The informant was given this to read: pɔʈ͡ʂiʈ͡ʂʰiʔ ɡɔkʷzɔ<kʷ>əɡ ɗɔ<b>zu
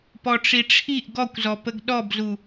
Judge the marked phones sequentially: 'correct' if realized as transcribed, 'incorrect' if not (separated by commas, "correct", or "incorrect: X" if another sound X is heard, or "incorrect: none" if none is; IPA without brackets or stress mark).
incorrect: p, correct